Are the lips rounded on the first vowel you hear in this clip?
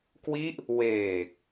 no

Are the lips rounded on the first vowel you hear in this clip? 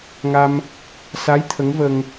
no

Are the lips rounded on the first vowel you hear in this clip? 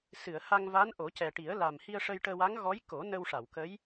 no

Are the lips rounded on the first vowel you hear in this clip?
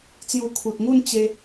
yes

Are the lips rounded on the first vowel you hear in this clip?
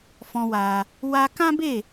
yes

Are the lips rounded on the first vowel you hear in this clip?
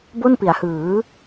yes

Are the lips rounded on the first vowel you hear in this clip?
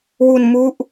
yes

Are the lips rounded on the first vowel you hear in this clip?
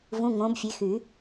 yes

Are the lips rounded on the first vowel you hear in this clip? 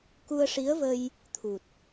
yes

